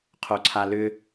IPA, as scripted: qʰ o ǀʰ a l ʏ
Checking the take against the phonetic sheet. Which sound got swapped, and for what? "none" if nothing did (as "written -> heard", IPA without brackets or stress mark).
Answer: none